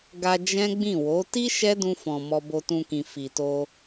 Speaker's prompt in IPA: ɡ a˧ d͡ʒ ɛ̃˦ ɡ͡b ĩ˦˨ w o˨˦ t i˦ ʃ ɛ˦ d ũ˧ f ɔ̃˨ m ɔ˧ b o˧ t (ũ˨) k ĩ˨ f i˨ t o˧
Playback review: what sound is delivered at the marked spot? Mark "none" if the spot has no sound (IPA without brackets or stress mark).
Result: ũ˧